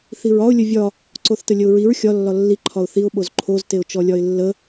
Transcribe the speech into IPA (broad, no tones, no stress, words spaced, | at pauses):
θiɹɒʊ̯ lʲəvʲɒ | ǀoθtəlʲəʊ̯ɹiɹ xʲɒ lːɒlːi ǃʰɒʊ̯θiʊ̯ ɓozǃʰoz teʊ̯t͡ʃɔlʲɒɪ̯lːə